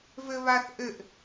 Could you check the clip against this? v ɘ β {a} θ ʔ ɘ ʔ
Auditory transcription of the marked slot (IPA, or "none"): a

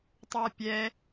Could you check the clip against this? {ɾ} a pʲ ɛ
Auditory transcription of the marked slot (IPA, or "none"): tˤ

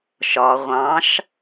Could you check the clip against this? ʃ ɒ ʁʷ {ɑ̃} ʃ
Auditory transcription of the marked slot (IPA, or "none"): ɑ̃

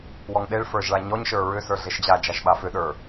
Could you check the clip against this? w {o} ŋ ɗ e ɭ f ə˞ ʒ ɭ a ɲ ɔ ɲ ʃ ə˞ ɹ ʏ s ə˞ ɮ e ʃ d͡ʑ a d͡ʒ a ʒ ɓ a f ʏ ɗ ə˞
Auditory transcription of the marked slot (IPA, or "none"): ɔ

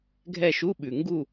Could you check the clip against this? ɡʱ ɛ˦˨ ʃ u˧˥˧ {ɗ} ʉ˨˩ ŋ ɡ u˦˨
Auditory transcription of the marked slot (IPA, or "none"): ɓ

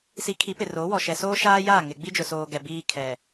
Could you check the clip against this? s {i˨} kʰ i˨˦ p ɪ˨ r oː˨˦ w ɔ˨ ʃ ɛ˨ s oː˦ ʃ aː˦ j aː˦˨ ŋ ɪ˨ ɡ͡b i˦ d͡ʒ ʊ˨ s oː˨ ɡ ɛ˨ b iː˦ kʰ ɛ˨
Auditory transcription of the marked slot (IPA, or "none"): i˨˦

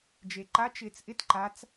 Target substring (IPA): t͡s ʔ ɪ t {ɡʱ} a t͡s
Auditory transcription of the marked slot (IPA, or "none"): ǃ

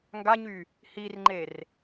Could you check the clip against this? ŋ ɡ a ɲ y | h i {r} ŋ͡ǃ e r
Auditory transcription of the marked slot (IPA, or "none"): r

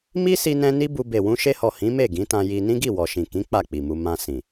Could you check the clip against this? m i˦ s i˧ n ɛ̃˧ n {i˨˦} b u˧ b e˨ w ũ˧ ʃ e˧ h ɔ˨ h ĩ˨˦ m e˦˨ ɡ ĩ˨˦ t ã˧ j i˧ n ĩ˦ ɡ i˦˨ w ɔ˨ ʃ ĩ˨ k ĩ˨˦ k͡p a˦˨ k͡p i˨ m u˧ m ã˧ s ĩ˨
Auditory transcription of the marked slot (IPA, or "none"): i˦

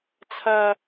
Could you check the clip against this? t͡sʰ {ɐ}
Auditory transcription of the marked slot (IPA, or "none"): ɐ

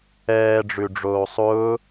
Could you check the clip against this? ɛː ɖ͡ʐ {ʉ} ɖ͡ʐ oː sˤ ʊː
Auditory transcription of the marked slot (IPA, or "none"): ʉ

